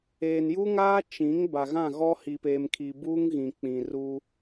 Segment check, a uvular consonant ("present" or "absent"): absent